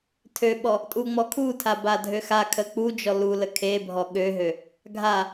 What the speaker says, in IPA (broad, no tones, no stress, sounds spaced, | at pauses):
tʰ ø ɓ ɔ | tʼ u ŋ͡m ɔ kʰ u tʰ a b a dʱ ø x a kʰ ə k͡p u d͡ʒ ɔ l u l ə kʰ e bʱ ɔ ɠ ø ɦ ø | ɡʱ a